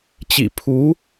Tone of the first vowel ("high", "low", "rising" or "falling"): low